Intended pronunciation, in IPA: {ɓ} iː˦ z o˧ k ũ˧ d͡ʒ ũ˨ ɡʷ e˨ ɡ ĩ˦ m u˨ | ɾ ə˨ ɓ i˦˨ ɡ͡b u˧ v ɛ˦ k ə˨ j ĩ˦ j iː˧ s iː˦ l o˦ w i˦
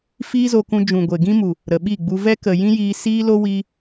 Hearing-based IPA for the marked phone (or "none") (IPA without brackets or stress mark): f